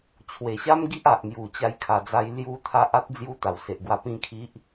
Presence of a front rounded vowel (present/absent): absent